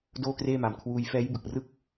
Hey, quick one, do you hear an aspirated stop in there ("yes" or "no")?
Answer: yes